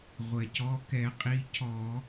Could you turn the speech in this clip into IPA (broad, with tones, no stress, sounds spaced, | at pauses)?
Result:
ʁʷ ɛ˩ c ɔ˩˧˩ k ɛ˧˩˧ qʼ i˩˧˩ cʰ ɔ˧˩˧